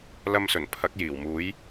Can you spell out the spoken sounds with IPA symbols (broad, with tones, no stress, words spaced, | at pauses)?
lɐ˧msɵ˨˩n pʰɐ˨˥k̚jiː˨˩wmuː˨˥j